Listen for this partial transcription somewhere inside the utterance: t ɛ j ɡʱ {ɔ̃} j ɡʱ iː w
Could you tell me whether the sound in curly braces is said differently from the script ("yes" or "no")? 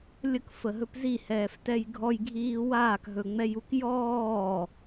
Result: yes